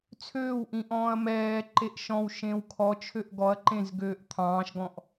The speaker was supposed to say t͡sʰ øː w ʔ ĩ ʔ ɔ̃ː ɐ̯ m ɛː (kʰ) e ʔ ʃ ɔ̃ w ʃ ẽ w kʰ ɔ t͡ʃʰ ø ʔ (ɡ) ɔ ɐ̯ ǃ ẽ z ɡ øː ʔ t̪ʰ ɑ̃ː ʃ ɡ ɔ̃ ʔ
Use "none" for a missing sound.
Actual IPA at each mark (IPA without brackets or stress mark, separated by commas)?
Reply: ǃ, ɡ